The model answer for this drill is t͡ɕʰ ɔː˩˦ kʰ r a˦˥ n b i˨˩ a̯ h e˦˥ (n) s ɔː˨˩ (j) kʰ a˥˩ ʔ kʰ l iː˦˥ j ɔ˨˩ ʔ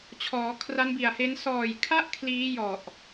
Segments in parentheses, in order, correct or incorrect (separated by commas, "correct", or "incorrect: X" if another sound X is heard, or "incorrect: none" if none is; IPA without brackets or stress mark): correct, correct